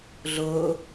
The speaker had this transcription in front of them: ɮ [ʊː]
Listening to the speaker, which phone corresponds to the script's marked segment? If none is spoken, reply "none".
ʊː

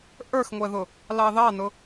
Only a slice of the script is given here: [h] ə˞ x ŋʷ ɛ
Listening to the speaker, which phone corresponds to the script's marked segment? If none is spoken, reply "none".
ʔ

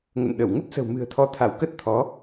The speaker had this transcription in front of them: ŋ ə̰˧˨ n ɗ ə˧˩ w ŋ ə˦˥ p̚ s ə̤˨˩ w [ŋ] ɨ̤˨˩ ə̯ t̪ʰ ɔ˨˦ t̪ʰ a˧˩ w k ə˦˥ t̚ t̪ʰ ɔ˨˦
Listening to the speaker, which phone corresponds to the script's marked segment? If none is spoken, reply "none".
m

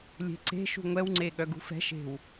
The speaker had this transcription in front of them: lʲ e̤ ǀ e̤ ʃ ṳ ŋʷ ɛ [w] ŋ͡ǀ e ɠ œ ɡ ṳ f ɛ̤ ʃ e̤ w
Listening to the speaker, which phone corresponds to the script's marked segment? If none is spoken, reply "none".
w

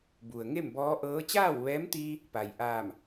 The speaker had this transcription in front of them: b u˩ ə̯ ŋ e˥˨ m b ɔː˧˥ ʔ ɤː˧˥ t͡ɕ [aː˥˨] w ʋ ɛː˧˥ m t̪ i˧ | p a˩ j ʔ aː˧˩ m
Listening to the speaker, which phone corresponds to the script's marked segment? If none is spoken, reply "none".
aː˥˨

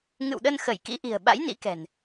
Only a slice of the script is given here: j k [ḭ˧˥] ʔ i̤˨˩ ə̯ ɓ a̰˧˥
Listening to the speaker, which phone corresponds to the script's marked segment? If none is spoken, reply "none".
ḭ˧˥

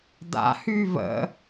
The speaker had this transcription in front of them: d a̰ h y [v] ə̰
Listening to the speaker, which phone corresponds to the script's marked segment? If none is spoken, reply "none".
v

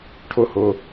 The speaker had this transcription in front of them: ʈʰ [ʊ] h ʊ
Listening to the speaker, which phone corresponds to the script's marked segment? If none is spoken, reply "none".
ʊ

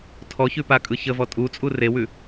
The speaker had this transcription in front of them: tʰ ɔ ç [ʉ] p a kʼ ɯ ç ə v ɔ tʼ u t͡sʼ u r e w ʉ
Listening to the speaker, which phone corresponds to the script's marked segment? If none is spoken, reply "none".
ʉ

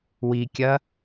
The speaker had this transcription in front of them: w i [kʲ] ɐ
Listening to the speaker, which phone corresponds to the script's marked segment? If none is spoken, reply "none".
kʲ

